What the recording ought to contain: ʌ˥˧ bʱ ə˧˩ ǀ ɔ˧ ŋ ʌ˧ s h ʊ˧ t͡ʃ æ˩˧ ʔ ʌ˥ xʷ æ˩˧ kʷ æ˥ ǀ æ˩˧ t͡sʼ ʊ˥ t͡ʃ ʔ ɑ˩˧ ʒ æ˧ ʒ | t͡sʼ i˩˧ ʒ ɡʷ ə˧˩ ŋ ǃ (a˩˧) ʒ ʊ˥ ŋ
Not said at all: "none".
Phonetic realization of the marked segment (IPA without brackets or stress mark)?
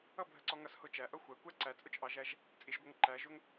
æ˩˧